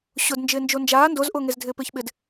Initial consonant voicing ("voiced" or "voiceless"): voiceless